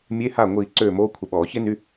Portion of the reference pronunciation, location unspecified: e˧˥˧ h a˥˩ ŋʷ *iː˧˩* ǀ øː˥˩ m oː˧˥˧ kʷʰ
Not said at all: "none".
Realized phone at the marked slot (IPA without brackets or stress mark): iː˧˩